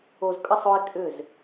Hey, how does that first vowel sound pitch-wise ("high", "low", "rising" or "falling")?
low